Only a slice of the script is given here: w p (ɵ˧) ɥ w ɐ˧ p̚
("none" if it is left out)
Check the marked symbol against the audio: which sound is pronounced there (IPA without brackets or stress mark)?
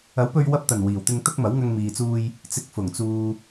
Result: ɵ˧